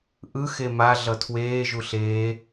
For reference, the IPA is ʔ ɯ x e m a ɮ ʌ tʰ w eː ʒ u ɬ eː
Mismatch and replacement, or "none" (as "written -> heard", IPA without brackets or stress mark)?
none